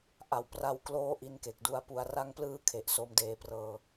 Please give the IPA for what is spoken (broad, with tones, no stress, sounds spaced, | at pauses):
ʔ a˨˩ w p r a˧ w k l oː˦˥ ʔ i˧ n k e˨˩ k̚ d u˧ a̯ p u˧ a̯ r a˦˥ ŋ p l ɯː˦˥ kʰ e˨˩ ʔ s o˧ m d eː˧ p r ɤː˧